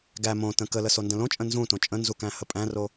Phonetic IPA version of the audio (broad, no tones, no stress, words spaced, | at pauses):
ɡæ mõtə̃ kələsondə̃ lõt͡ʃʼə̃ nzũtõ t͡ʃʼə̃nzukæ̃hə pʼæ̃ro